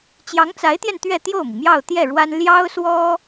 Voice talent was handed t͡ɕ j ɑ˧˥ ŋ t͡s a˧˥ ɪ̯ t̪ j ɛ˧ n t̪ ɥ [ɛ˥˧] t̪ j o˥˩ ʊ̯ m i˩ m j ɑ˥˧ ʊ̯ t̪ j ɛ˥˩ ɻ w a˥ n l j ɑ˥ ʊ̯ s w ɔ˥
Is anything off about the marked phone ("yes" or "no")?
no